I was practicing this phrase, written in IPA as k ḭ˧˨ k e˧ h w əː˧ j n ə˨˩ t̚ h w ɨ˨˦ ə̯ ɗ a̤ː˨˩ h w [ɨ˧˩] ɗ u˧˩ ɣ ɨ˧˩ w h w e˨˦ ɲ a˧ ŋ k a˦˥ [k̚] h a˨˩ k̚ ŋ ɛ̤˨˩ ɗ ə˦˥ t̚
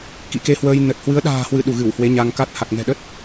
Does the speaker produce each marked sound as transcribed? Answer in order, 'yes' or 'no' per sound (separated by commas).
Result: yes, no